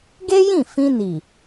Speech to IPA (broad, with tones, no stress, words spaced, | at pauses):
ɡe˦jĩ˦˨ fĩ˧ni˨